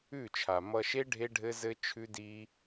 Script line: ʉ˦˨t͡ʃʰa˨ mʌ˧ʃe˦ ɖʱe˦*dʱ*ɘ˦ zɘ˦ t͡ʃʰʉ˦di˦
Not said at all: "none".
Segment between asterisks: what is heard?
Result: ɖʱ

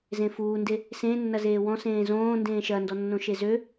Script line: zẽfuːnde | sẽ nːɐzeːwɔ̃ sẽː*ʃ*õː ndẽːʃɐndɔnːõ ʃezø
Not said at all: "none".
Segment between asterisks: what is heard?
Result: z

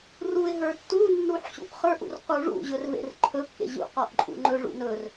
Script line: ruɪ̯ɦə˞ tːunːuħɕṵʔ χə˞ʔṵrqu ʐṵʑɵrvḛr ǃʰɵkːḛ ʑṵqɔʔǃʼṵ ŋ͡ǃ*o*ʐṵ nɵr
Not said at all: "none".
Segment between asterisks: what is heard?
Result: ɵ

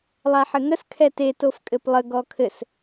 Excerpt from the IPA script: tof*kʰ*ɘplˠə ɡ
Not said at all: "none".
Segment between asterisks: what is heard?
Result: kʼ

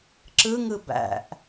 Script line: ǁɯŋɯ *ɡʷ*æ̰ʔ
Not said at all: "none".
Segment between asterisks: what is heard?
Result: b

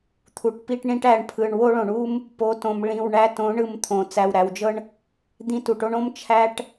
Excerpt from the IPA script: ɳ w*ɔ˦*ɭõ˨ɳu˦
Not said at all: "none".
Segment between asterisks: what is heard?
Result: o˦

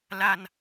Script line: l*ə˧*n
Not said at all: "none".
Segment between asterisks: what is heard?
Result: a˧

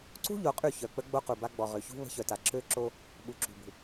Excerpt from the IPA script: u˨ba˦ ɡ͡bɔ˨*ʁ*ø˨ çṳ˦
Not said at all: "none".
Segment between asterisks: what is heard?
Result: ʁ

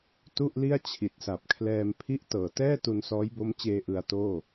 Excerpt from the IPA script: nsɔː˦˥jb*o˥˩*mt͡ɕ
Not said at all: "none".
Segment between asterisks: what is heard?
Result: o˦˥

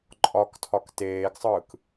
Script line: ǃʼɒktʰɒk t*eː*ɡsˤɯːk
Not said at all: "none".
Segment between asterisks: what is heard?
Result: eː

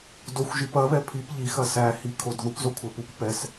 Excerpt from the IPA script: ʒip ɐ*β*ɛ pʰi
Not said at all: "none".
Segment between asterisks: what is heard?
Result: β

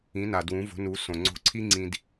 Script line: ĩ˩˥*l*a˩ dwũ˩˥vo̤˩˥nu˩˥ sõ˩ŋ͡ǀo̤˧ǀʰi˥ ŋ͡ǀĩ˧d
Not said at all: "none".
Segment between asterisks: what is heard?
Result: n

